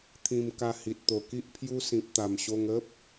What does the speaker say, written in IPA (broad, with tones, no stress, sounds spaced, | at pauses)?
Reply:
t̪ʰ ĩ˧ m k a˧ h i˨ t̚ t̪ o˨˩ k i˦ ʔ pʰ j u˦ s ĩ˨ p̚ t̪ a˨˩ m ɕ o˧ ŋ ə˦ p̚